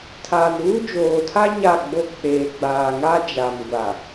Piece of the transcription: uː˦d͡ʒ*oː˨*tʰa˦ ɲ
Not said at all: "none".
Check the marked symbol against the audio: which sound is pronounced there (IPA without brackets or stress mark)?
oː˨